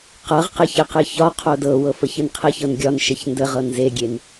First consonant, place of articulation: uvular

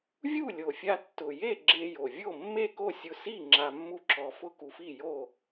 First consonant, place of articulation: labial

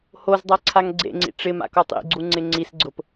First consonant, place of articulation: glottal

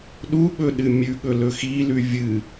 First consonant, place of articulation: alveolar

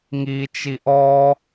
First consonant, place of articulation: velar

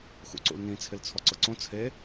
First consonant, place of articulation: velar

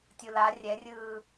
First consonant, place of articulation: alveolar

